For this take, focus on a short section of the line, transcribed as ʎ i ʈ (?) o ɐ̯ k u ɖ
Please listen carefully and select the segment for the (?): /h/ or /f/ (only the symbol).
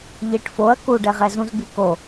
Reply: f